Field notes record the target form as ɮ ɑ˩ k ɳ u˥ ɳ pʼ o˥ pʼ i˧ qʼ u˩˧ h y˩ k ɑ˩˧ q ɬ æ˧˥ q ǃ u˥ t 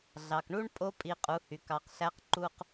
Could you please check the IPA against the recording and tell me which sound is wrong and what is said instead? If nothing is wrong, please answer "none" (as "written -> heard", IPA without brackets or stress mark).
t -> q